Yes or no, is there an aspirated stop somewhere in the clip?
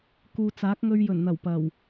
no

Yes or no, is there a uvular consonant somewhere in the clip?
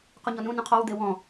yes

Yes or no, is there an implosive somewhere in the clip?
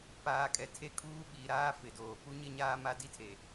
yes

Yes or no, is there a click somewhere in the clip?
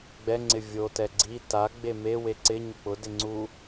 yes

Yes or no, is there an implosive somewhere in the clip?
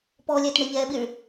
yes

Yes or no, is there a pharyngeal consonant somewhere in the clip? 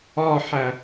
yes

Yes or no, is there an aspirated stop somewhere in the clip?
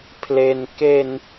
yes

